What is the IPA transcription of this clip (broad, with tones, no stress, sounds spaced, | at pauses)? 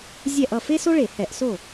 zʲ ɛ˥˩ ʔ ʌ˥˩ f e˥ s o˥ ɭ e˧˩˧ h ɛ˧˩˧ ʔ s o˥˩